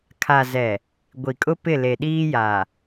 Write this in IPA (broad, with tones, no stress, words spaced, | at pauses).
kʰa˨ zɛ˨ | ɡʷi˨kʼʊ˦ pɪ˦˨le˨ɗiː˦ja˨